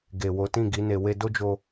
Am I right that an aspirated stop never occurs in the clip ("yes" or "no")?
yes